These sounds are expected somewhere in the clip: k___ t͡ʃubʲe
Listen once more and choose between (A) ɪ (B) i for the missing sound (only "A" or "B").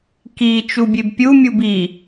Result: B